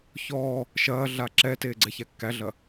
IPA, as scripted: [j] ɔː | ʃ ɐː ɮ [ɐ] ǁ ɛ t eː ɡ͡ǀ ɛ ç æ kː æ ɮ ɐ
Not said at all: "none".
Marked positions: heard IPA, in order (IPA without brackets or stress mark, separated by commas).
ç, a